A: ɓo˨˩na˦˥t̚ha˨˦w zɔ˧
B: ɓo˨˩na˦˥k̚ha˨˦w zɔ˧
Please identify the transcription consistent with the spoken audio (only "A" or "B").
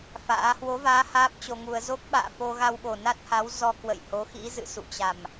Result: A